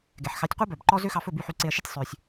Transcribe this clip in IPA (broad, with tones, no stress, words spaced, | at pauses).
ɡɛ˩ħxɑ˩˥tʲqʷɛ˥bœ˩b ǃɔ˥ zø˥xɑ˧fɵ˥˩ by˥˩ħy˧ǀe˧ɐ̯ ʃe˥tʲsˤø˩sʲ